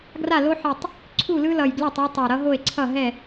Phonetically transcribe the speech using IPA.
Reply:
ɡ r a˥˩ l o˦ ħ i˨˩ tˤ | ǀʰ u˥˩ l ɯ˦ l ʌ˨˩ j ɡ l ɛ˥˩ tˤ o˦ tˤ ʌ˨˩ ɾ ʌ˦ ɦ o˥˩ e̯ ǀʰ ʌ˥˩ ɦ ɛ˥˩

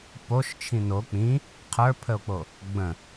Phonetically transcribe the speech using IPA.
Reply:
p o ʃ t͡ʃʰ ĩ n o k͡p ĩ | qʰ ə˞ pʰ ə o̯ k͡p o | ɡ͡b ə̃

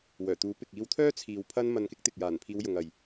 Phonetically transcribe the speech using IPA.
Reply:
w œː˨˩ t̪ uː˨˥ p ɪ˨ k̚ iː˧ w t̪ʰ œː˥ t͡sʰ iː˨ w pʰ ɐ˥ n m ɐ˧ n k ɪ˥ k̚ t̪ ɪ˨ k̚ j aː˨˩ n pʰ iː˨˧ w j ʊ˨ ŋ ɐ˨ j

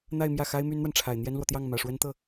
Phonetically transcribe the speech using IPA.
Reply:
n̪ a˥˧ ɪ̯ m j ä˥˩ x a˥ ɪ̯ m y˥ n n̪ w a˨ n ʈ͡ʂʰ a˨˩ ɪ̯ n̪ j ɛ˥ n l w ɔ˨ t̪ j ɑ˥˩ ŋ m ä˨˩ ʂ w ə˥ n t̪ ɤ˥˩

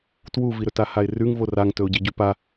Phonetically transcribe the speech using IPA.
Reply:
t w u v i ɾ ɵ t a h a ɪ̯ r ʉ ŋ v o r a ŋ t ɵ ʊ̯ ɟ i ɟ ʉ p a

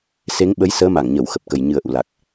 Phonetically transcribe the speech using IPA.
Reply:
s e˨˦ ŋ ɓ ə˨˦ j s əː˨˦ m a˧˩ ŋ ɲ ə˧˩ w x ə˨˩ p̚ k ə˨˩ j ɲ ɨ˨˩ ə̯ ʔ ṵ˧˨ l a˨˩ k̚

